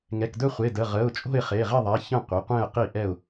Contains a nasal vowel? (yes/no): yes